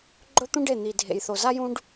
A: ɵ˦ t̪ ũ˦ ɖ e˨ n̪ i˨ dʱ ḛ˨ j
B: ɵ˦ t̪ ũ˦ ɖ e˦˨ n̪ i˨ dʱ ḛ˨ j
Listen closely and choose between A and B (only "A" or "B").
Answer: B